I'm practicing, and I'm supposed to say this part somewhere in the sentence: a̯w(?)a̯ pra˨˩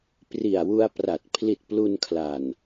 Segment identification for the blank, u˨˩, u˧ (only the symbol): u˧